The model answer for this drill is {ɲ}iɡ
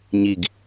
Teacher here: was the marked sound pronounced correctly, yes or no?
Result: yes